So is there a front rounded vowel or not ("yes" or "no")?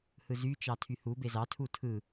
yes